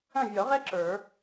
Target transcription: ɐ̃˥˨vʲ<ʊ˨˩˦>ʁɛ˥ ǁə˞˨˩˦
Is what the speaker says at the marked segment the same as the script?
no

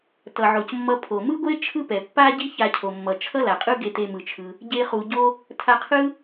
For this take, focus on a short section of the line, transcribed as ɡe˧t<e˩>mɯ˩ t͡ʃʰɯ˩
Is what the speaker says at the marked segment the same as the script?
no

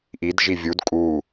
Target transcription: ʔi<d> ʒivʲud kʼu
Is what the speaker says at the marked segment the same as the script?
yes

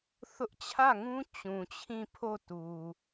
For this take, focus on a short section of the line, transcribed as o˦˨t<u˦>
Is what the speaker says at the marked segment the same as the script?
no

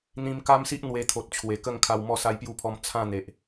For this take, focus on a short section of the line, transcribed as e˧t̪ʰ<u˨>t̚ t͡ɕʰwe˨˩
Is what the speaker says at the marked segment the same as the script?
no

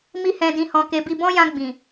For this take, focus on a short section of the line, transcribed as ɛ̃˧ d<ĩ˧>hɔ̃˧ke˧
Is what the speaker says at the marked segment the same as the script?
yes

